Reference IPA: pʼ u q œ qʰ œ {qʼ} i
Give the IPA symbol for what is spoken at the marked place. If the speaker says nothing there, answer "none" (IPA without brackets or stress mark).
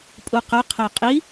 qʼ